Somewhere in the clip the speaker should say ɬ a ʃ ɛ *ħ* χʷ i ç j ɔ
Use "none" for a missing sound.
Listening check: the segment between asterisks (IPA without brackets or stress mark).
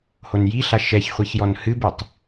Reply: ç